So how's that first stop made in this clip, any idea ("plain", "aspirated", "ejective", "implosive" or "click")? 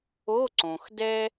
click